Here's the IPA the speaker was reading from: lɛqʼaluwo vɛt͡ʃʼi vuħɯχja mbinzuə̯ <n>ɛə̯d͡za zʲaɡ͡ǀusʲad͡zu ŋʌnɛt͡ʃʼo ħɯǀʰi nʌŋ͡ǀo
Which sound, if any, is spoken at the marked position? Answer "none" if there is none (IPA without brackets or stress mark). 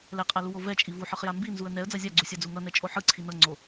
n